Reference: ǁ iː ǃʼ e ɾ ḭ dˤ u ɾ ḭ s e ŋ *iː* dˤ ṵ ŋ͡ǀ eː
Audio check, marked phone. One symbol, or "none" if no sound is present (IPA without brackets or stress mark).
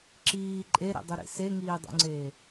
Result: iː